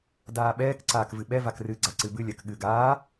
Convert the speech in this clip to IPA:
d aː ɓ ɛː k ǀ aː k v ɨ ɓ ɛ v a k r ɨ ɡ͡ǀ a ǀ ɨ b ɨ lʲ ɜ k ɠ ɨ ɡ aː

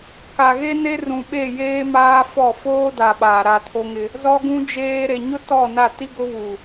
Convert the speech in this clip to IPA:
k a˨ ɣ e˦ n e˦ r ũ˨ ɓ e˦˨ j eː˦ m aː˦ f ɔ˦˨ f oː˦ d a˨ ɓ aː˨ ɾ a˦˨ tʰ o˦ ŋ ɪ˦ | z ɔ˦ ɡ ũ˦ d͡ʒ eː˦ ɾ e˨ ɲ ʊ˦ t ɔ˦˨ n a˦˨ t i˦ ɡ ʊ˦ β u˨

